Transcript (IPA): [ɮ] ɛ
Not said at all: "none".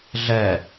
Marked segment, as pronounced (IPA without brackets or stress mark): ɮ